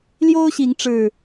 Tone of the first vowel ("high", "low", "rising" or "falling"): high